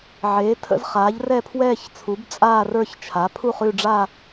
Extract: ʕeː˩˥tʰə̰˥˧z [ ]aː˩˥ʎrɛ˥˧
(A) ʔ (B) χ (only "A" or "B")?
B